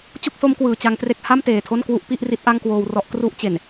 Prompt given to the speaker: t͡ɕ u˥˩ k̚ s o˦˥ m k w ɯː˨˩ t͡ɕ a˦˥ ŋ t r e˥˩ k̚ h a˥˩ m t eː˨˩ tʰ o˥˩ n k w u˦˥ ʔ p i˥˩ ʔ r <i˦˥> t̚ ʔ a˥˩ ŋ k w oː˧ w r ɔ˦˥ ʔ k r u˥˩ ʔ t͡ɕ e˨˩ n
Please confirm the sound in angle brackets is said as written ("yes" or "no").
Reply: yes